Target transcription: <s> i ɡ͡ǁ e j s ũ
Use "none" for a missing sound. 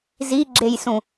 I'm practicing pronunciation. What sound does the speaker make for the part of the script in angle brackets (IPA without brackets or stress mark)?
z